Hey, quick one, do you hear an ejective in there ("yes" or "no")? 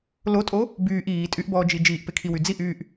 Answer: yes